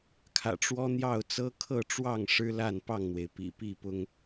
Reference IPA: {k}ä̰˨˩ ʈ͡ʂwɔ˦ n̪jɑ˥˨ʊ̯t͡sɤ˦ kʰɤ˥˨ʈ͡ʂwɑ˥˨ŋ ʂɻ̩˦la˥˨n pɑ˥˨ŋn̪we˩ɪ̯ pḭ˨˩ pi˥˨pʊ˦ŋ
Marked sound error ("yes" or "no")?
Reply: yes